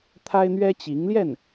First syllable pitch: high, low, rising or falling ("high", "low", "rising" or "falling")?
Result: high